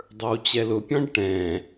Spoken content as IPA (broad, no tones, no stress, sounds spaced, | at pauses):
dˤ ə˞ w t͡ɕ ɛ l ʊ pʲ ɔ̃ ɖ ʈ ɛ̃